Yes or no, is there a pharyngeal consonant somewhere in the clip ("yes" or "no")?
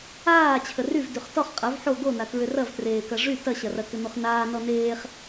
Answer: yes